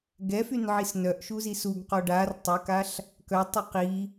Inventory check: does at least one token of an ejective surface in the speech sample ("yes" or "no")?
no